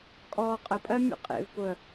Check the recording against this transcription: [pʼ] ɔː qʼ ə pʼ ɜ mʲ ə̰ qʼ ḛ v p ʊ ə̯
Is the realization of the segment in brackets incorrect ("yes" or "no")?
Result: yes